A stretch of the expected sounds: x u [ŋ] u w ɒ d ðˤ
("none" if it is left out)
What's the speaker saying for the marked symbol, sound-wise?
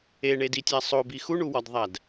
ɳ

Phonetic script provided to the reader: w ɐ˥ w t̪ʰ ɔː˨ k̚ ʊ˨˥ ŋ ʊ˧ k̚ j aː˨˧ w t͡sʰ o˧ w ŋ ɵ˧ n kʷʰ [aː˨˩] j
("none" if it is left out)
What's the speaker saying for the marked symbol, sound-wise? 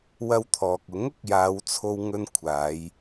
aː˨˧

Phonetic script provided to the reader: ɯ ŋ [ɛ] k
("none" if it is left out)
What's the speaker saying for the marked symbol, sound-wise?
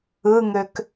ø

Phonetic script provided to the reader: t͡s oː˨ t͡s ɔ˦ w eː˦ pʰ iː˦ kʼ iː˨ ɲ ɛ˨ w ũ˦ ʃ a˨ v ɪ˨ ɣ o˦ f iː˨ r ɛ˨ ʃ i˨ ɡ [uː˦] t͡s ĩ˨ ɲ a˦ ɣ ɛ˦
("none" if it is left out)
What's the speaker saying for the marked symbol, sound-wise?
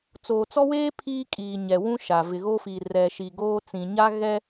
oː˦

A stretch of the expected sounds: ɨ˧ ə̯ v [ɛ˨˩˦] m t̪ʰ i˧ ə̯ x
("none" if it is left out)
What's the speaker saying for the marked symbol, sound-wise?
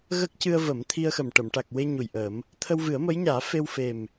ə˨˩˦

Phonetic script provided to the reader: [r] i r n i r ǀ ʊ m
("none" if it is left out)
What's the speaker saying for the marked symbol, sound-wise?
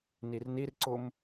n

